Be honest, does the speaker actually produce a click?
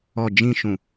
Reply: no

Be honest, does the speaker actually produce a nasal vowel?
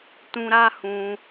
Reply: yes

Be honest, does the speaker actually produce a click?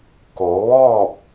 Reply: no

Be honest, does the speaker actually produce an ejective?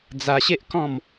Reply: no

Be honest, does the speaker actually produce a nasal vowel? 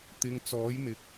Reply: no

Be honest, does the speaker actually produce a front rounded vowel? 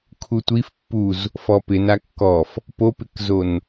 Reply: no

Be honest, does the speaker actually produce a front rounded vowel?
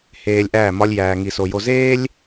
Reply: no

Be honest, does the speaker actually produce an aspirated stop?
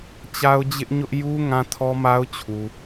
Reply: yes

